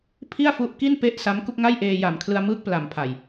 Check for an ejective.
absent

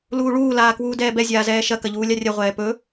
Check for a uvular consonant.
present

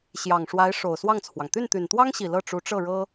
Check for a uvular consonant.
absent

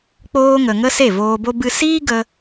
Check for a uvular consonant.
absent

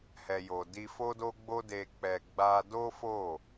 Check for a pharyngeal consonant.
absent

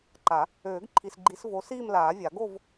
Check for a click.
present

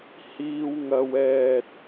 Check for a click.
absent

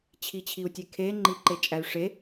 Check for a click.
present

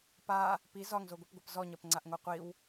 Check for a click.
present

